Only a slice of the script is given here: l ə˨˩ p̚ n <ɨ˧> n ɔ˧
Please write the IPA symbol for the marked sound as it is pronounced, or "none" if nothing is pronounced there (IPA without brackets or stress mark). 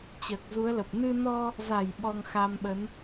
ɨ˧